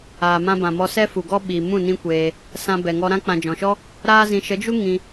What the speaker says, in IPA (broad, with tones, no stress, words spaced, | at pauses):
aː˨mã˧bã˨mɔ˧ sɛ˦fu˨ɡɔ˦ ɓi˨mũ˦˨ nĩ˦kʷeː˧ | sã˧bɛ˨ŋɔ˧ ɾã˧ k͡pã˨d͡ʒɔ̃˨ʃɔ˦ | ɾaː˦zĩ˧ ʃə˨˦d͡ʒu˦ ŋĩ˧